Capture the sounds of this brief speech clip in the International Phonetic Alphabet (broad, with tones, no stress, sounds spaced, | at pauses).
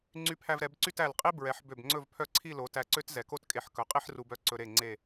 ŋ͡ǀ y˧ pʰ æ˧ v ɾ ɛ˩˧ b ǀ y˥˧ t æ˧˩ l qʼ i˥ b ɹ ɛ˩˧ ħ b ø˧˩ b ŋ͡ǀ ɵ˥˧ v pʰ œ˥˧ ǀʰ i˥˧ l o˩˧ t æ˧˩ ǀ ø˥ t z ɛ˩˧ k o˥˧ t kʼ e˧˩ ħ k ɵ˩˧ qʼ i˥ ħ r u˧ b œ˥ ǀ ɵ˧ ɾ e˧˩ ŋ͡ǀ e˧˩